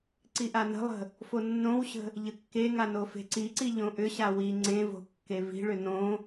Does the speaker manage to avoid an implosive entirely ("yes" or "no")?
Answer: yes